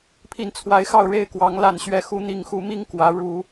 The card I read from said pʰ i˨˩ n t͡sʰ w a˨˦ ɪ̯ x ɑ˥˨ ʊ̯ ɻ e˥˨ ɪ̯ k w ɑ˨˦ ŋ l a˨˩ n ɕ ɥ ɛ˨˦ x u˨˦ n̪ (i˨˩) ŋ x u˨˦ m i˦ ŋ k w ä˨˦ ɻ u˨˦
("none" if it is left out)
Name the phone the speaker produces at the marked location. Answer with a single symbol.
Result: i˨˩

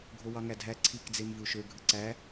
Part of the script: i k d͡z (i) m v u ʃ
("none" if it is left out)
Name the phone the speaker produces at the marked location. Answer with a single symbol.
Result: e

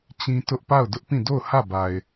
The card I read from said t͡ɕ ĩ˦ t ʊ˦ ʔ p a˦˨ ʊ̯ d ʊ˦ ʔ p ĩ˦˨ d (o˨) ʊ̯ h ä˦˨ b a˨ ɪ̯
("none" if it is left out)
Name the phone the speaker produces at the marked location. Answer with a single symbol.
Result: o˦˨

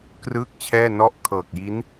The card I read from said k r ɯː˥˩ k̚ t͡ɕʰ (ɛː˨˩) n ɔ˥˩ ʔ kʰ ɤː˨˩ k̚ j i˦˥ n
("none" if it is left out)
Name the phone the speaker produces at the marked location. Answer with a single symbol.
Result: ɛː˥˩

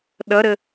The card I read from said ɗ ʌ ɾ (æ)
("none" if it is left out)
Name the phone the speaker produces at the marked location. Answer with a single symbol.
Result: ə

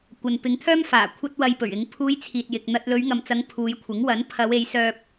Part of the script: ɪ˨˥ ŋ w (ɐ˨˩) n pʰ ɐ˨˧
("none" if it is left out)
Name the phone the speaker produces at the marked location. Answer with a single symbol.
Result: ɐ˨˥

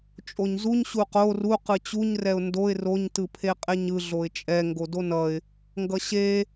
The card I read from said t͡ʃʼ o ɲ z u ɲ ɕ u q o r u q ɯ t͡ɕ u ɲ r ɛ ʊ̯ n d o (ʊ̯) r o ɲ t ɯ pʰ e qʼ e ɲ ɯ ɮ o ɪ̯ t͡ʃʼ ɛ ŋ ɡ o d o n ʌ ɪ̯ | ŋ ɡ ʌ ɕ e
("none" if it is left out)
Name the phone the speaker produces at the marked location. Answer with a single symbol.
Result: ɪ̯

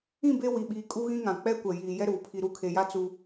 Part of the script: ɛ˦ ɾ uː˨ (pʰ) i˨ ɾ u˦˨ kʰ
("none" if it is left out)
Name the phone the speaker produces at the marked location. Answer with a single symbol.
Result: pʰ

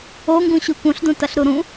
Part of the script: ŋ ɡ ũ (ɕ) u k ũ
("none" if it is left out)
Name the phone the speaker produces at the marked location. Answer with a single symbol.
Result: ɕ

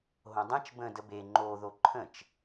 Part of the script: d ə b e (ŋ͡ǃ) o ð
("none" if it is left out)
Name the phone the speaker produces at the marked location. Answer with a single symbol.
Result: ŋ͡ǃ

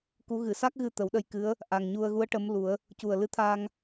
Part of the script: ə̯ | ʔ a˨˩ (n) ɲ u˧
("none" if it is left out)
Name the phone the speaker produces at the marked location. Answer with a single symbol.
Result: ŋ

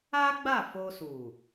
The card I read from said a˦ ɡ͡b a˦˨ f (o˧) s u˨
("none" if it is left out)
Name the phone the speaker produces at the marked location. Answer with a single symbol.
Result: o˧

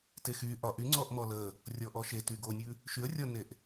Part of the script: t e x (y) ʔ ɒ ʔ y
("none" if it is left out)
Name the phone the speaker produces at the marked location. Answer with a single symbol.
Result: y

